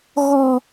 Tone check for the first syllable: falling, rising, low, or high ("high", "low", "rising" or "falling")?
high